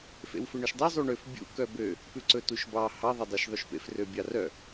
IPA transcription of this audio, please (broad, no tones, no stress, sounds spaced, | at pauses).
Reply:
f ḛ w f ø ɳ œ ʃ dˤ e zˤ u ɳ ø f bʲ ṵ k œ b ø | p ʉ ǀ ɵ t u ʃ b ɑ h ɑ ðˤ e dˤ e ʃ ðˤ ʉ ʃ p ḛ f r ø bʲ ɑ r œ